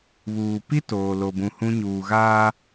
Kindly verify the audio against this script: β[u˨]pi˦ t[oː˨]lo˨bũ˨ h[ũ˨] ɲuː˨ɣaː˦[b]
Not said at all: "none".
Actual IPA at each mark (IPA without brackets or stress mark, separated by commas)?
uː˨, oː˨, ũ˦, none